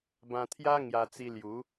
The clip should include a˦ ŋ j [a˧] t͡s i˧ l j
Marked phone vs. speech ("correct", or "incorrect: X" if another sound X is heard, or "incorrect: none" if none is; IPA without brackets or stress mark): correct